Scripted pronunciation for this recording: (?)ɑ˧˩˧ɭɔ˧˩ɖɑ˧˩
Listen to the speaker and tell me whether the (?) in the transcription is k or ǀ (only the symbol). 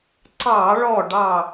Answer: ǀ